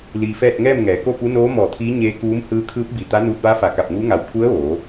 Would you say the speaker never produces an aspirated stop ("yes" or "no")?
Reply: no